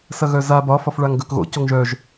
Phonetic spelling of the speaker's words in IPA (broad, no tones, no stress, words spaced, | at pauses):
sɐɣœza bɒ fɒfɭaŋɡœkɣo̰ coŋʒœʒ